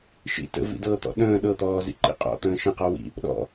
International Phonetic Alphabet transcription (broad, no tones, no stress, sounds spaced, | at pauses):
ʃ ḭ t ə̰ v ḭ d ɤː t̪ ɔ̰ ɗ ə̃ː ɗ ɤ t̪ ɔː z ḭ ǃ ḭ qʼ ɔ̰ t̪ ə̃ː ʃ ə̃ q ɔ w ḭ | ɗ ɔ̰